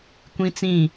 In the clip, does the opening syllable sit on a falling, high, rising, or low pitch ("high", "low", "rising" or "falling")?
high